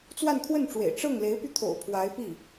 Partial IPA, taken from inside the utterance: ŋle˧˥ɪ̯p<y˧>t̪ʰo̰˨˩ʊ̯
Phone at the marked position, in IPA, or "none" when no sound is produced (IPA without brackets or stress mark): y˧